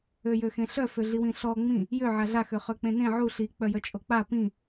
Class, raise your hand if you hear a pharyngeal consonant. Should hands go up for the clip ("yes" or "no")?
yes